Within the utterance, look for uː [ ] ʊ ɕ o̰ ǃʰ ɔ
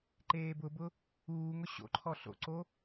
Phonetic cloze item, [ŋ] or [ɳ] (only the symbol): ŋ